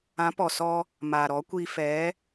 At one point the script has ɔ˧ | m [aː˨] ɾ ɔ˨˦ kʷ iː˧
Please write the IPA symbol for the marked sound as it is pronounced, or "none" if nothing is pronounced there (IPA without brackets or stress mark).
aː˨